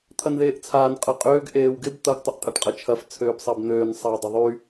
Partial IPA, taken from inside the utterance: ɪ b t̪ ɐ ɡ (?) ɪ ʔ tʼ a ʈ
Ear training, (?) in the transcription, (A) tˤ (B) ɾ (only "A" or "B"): A